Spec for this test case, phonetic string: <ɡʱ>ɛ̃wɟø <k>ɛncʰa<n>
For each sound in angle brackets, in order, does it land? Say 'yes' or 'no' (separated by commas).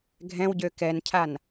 yes, yes, yes